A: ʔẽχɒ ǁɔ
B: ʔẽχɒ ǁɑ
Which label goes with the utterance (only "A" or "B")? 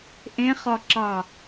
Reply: B